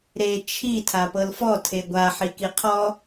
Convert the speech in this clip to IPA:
ɾe t͡ʃʰi tʰapɤlfɔ tʰeɡʷa ħikiqʰɔ

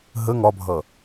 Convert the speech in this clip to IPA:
ɦə ŋɒbʱʌ

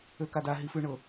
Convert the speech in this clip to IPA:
økada ɦifʉɳɤ

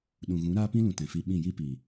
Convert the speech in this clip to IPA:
ɗũ˨ɣũ˨˦ ɾaː˧pĩ˧lũ˨ tɛ̃˨fi˧ɓĩ˦˨ ji˧pi˨

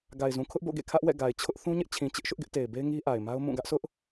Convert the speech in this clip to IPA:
ɡa˨ɪ̯zũ˨kʰʊ˦ʔbo̰˦˨ ɡḛ˦˨kʰä˦ʔwɛ̰˦˨ ɡa˨ɪ̯t͡ɕʰʊ˦ʔ θũ˦ɲɪ˦ʔt͡ɕʰĩ˨t͡ɕɪ˦ʔ ʃʊ˦ʔɡɪ˦ʔte˨ɪ̯be˦ɪ̯ ŋi˦ʔa˨ɪ̯ma˦ʊ̯ mũ˦˨ ɡä˦ʔsʰʊ˦ʔ

